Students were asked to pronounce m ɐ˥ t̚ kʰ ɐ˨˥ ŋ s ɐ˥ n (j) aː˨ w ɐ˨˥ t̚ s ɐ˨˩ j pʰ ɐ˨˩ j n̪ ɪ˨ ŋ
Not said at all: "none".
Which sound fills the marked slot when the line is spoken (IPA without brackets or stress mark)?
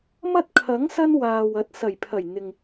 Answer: w